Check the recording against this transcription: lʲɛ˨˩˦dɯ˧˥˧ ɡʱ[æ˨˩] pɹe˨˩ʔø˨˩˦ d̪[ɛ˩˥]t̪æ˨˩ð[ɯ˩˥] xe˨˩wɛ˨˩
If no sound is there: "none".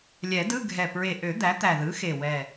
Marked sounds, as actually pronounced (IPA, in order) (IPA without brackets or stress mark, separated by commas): ɛ˨˩, æ˩˥, ɯ˩˥